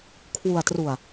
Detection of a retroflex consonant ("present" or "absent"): absent